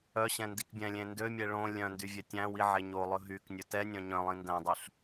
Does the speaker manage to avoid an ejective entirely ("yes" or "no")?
yes